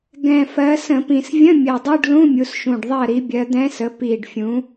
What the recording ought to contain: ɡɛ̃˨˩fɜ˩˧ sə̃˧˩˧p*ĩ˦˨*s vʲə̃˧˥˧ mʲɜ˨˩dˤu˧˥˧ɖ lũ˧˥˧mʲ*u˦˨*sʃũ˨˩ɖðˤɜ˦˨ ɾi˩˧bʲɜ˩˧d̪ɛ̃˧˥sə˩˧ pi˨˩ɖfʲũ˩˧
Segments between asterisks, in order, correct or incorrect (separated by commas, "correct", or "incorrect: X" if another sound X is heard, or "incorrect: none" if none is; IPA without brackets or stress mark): incorrect: ĩ˨˩, incorrect: u˩˧